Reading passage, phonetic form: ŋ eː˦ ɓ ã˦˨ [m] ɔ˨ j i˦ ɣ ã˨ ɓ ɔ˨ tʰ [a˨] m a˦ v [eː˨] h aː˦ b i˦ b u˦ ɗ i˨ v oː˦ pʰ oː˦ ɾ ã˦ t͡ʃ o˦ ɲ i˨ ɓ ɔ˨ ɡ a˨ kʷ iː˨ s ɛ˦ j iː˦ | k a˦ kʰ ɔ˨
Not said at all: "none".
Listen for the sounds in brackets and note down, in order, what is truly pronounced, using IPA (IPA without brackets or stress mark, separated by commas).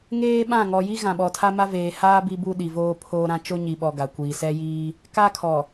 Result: ŋ, a˦, eː˨